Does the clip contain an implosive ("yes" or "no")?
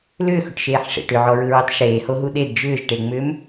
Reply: yes